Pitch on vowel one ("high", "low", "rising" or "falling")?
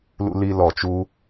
high